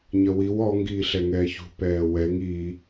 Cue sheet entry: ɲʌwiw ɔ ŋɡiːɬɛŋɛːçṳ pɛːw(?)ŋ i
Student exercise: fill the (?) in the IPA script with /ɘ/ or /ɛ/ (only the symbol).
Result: ɛ